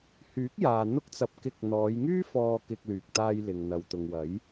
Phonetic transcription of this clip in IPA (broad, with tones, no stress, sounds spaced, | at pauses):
h yː˨˥ k̚ j aː˨ n̪ ʊ˥ k̚ t͡s ɐ˧ p̚ k ɪ˧ k̚ n̪ ɔː˨˧ j ŋ yː˥ f ɔː˧ k ɪ˧ k̚ l yː˨ k̚ t̪ aː˧ j l ɪ˨ ŋ n̪ ɐ˨ w t̪ ʊ˨ ŋ w ɐ˨˥ j